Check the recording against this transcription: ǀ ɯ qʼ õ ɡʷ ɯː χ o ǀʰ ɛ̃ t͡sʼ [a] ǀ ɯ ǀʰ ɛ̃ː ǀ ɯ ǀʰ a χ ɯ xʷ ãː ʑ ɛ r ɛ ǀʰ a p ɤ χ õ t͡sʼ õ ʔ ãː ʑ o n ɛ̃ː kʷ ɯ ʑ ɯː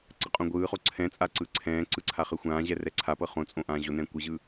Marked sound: correct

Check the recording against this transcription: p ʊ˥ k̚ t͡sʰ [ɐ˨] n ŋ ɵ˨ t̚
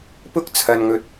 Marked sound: correct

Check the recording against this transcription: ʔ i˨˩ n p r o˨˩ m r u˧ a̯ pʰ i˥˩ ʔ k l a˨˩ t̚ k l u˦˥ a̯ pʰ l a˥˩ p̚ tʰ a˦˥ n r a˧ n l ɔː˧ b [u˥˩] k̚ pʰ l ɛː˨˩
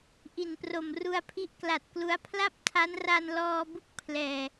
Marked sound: correct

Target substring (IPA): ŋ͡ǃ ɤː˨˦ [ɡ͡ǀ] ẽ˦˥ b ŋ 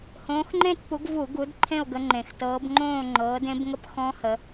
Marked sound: incorrect: d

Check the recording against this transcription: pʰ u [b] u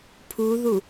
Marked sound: incorrect: ð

